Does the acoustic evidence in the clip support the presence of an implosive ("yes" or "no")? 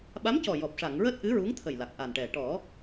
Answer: yes